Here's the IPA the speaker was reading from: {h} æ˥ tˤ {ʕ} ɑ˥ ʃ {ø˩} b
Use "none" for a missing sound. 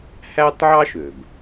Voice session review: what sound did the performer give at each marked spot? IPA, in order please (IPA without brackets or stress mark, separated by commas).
h, ʕ, ø˩